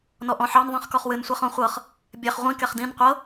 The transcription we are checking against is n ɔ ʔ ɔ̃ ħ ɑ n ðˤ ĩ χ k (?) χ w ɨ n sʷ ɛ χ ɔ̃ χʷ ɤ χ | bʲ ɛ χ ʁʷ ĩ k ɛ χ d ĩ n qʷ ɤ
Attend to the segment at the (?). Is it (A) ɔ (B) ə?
A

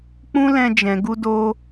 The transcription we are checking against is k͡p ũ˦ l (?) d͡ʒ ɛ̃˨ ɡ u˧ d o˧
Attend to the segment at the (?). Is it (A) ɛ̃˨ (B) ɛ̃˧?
B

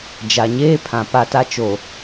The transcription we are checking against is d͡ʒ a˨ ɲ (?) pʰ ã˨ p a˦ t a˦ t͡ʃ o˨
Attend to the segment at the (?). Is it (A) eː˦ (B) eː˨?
A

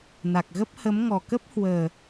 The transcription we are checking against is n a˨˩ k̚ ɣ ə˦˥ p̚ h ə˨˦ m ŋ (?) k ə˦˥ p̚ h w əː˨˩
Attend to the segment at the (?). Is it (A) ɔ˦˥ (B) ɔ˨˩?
B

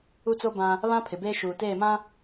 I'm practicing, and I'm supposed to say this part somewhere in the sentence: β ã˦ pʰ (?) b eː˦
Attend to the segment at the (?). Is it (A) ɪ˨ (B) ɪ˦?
A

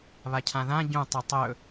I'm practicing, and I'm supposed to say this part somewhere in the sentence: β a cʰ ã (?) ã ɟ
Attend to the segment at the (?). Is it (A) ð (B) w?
A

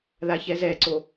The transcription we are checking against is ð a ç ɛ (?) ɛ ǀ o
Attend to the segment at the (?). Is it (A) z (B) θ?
A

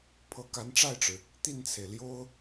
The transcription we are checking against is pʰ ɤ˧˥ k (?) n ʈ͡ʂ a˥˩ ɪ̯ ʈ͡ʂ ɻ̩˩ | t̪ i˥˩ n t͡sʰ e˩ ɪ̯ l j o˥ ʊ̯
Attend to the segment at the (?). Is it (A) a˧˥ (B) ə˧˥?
A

